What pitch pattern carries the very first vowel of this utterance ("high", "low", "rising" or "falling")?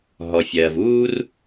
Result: low